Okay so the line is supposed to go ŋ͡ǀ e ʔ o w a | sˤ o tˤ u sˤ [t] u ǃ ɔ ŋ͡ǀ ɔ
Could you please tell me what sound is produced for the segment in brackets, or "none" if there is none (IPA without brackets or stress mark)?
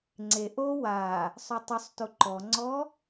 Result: t